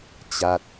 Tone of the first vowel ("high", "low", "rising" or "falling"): falling